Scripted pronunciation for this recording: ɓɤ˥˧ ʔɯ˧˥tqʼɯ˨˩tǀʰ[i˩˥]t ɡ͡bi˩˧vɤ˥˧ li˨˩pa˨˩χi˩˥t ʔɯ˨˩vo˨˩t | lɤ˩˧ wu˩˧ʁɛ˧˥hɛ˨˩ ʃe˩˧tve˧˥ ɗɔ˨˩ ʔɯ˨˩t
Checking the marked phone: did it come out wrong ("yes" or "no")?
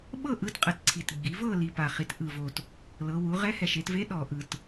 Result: yes